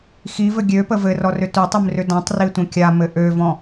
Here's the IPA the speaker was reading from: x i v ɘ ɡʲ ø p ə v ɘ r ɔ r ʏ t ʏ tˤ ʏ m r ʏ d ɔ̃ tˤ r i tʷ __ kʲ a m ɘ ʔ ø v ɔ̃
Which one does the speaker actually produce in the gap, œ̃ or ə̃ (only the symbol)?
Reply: ə̃